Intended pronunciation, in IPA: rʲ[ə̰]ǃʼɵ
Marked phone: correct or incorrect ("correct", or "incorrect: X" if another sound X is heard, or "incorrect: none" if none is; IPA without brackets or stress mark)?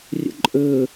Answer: correct